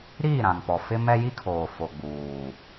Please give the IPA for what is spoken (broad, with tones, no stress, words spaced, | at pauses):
ɾiː˦˨ɾã˨ŋpɔ˨ fɪ˦mɛ˦ji˦kʰoː˨ fo˨ɡ͡buː˨